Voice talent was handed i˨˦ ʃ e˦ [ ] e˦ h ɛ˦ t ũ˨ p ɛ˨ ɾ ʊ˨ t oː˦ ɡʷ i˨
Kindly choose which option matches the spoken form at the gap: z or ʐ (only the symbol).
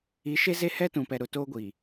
z